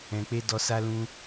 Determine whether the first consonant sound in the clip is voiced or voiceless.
voiceless